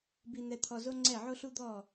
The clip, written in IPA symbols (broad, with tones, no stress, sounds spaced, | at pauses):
b i˧ n̪ ɛ˧ t̪ʰ ɔ˧ z o˥ ŋ͡ǀ ɛ˥˩ ʕ o˥ ɬ u˥ d̪ ɔ˥˩